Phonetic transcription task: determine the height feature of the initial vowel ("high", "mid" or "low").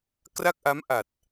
low